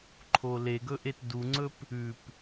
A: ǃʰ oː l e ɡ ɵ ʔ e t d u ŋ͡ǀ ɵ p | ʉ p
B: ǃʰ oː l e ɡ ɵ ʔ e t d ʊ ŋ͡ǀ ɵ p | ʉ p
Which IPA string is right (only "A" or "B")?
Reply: A